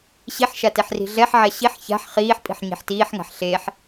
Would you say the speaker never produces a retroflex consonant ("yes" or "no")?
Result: yes